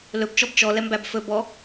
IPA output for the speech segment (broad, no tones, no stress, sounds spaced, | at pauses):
l ɵ b t͡ʃ ɔ b t͡ʃ ɔ l ɛ m b æ b f ɵ b ɔ